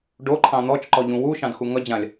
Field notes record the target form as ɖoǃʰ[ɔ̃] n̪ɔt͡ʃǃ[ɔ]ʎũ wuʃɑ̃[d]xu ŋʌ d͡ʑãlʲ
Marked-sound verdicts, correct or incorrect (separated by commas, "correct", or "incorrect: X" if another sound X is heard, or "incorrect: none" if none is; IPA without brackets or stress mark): incorrect: ɑ̃, correct, correct